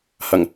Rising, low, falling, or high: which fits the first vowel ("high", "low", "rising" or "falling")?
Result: low